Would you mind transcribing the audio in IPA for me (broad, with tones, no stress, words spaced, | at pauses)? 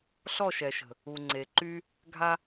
ɬɔ˦˨ʃɛ˨ʃə̤˨ | u˨ŋ͡ǀe˨ǃy˦ | ɡʱa˦